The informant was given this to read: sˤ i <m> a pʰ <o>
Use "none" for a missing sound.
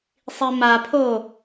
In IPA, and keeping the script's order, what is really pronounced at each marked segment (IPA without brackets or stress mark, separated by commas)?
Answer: m, o